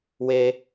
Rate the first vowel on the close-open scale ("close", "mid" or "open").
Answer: mid